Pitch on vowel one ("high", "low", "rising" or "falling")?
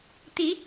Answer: rising